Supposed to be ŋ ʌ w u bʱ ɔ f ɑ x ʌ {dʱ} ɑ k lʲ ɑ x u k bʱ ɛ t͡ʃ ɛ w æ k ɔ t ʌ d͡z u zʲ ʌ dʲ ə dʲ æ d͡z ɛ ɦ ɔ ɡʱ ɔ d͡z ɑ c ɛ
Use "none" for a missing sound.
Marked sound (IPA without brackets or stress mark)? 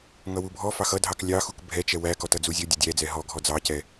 dʱ